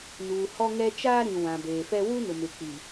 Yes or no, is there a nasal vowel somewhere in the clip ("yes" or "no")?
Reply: yes